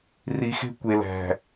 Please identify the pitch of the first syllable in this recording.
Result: low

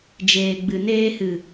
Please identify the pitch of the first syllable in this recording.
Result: low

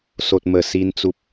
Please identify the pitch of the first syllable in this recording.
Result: low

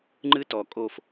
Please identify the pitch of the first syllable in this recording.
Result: high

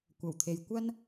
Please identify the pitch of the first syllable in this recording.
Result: low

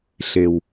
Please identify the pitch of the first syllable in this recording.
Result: high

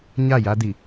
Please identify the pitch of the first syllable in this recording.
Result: falling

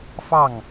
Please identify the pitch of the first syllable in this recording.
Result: falling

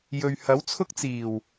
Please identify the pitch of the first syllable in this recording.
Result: low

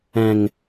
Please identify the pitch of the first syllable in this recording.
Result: low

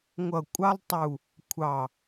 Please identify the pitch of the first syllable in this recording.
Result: low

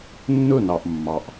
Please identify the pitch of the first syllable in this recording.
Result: falling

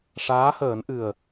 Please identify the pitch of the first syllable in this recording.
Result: rising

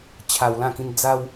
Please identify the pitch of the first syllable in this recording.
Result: high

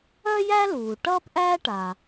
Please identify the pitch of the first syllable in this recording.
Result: high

